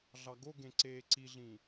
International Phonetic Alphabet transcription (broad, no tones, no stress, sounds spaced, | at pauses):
ɮ ɑ ɡ o ɡ ẽ ǀ eː ǀ i ɮ ĩ